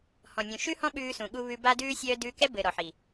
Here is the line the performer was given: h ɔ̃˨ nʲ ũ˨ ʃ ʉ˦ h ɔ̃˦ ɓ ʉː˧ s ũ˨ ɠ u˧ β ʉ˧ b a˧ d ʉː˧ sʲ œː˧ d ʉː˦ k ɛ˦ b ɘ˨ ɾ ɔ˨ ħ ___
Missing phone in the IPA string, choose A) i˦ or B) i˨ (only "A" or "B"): B